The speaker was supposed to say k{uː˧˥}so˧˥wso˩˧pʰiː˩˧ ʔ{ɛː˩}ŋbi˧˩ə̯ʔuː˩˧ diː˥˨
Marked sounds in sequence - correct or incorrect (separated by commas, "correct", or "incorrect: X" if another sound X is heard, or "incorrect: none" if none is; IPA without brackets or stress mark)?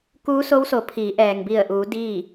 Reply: correct, correct